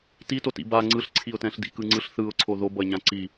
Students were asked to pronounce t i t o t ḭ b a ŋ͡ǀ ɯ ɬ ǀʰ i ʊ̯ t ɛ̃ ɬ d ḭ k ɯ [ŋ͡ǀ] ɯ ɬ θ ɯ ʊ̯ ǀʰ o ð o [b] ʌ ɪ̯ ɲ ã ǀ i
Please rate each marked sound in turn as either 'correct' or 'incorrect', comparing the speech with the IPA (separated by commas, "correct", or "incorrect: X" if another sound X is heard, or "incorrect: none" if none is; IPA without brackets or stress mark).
correct, correct